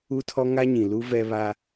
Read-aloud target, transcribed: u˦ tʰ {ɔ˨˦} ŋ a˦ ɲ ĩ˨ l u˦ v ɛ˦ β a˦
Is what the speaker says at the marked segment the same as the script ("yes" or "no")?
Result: no